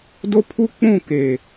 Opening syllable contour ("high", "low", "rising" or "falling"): high